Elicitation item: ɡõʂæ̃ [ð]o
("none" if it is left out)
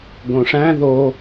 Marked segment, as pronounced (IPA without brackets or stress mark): ð